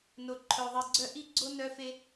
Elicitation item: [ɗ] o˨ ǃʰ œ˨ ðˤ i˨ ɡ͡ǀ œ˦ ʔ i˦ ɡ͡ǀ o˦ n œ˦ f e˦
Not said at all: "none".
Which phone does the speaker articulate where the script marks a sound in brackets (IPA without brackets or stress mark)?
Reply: n